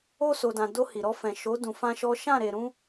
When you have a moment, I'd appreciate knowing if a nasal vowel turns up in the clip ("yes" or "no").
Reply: yes